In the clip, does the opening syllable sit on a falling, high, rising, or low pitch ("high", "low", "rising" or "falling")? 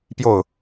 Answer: falling